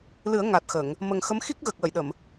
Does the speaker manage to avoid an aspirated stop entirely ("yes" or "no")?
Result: yes